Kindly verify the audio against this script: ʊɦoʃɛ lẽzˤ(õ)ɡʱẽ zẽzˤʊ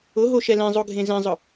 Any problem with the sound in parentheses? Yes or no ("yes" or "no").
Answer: yes